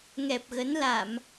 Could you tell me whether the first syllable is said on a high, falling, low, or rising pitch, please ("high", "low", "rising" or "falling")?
low